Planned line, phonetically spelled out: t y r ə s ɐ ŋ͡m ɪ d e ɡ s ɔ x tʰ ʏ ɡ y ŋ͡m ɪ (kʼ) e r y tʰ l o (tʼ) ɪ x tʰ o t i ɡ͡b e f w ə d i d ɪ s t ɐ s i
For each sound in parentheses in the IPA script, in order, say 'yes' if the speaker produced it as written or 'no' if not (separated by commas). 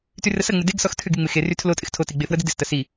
no, yes